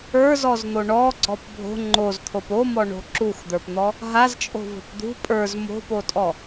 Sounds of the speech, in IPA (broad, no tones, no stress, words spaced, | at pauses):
ə˞zɔzn̪o ɳɔɡ͡ǀɔp bʱo̤ ŋ͡ǃozt̪ʰop omɔɳo̤ ǁuxd̪ə˞pn̪ɔ | ɦazt͡ʃʼo̤vɔ̤p d̪ṳ pʼə˞z mo̤potʼɔ